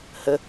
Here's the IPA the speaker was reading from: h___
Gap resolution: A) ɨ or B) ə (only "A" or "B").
B